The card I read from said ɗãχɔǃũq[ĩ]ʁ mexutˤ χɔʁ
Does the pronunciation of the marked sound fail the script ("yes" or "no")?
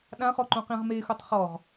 no